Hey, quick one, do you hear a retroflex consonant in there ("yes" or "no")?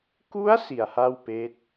no